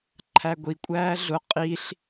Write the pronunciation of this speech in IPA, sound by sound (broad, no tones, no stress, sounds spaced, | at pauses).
ǃʰ æ ɡʷ i kʷʼ æː ɮ ʊ qʼ i ɬ